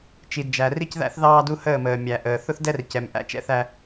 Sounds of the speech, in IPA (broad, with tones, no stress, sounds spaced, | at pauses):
t͡ʃ i˨ d d͡ʒ æ˨ r i˦ c ð æ̰˦ θ ð ɑː˦ d u˦ h əː˦˨ m əː˨ mʲ æ˨ ʔ əː˨ θ ʊ˦ θ d ɛ˦ r c ɛ˨ m ʔ æ̰˦ t͡ʃ ɛ̰˦ θ æ˦